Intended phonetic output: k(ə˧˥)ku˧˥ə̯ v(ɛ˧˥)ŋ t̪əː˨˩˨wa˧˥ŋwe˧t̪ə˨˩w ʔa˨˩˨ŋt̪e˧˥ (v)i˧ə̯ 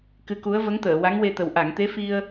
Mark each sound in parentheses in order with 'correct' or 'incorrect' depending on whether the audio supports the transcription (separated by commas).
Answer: incorrect, incorrect, incorrect